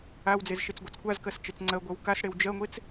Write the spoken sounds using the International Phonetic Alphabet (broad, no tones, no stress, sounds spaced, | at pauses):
a w d͡z e z ʃ e t͡s ɡʷ a t͡s kʷ a z k ɜ s t͡ʃ e t͡s ŋ͡ǀ ɜ ɡʷ ɜ w k a s ɽ e w d͡ʒ ɜ ŋʷ e t͡s